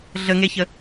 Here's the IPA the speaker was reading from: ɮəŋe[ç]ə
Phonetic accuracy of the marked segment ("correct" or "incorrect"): correct